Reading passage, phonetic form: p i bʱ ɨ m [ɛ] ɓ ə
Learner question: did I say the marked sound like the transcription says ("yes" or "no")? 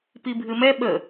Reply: yes